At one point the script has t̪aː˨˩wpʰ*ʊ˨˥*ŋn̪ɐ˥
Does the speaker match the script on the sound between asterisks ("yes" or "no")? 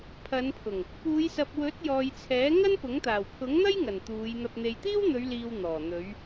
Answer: yes